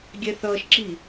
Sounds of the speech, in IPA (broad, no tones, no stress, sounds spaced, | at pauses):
ɡʲ ɛ θ ʌː ʃ ǁ i